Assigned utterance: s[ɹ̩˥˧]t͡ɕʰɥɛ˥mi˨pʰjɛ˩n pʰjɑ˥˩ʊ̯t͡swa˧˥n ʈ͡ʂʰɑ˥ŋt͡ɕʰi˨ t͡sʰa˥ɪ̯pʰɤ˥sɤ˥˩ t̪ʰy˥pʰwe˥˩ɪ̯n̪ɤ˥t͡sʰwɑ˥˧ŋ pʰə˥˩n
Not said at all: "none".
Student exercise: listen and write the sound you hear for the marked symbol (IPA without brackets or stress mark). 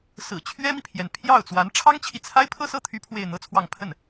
ɹ̩˨˩